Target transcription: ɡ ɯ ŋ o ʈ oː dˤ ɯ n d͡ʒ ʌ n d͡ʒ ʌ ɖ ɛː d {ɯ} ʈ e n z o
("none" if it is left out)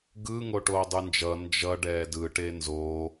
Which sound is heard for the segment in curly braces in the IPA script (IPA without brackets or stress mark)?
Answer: ɯ